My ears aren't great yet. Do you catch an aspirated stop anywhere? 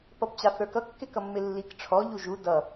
yes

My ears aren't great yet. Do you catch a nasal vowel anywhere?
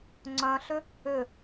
yes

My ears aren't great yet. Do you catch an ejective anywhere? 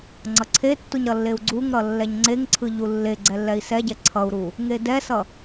no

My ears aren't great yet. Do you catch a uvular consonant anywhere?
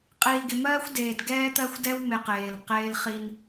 yes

